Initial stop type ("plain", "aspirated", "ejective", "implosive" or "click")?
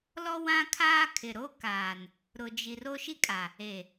aspirated